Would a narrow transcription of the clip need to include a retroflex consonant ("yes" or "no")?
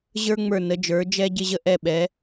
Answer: no